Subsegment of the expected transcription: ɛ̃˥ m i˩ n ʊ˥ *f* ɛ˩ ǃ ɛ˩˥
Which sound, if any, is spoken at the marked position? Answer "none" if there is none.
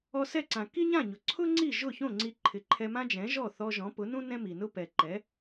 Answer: p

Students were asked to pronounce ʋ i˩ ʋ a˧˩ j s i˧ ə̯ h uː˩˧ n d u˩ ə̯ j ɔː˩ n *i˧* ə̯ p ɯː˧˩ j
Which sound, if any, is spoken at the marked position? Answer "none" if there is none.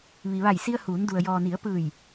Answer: i˩˧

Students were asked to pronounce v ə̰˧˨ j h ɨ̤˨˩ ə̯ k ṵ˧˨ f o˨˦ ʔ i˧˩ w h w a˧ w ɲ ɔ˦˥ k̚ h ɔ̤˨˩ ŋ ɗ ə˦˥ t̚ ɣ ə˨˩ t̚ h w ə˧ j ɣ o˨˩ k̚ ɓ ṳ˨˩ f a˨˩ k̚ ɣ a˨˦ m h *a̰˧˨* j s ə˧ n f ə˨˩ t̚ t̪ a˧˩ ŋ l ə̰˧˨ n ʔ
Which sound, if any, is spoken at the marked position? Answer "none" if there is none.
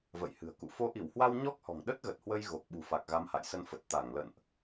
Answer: a̰˧˨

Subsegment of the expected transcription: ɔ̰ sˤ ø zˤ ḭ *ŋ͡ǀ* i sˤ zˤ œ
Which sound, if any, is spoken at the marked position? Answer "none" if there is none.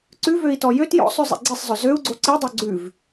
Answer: ɡ͡ǀ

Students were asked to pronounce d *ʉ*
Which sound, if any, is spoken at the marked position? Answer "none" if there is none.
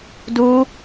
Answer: u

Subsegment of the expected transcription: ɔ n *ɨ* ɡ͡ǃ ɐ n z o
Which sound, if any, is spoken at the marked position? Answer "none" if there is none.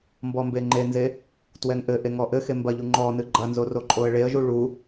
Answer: ɨ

